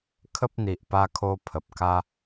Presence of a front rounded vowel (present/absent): absent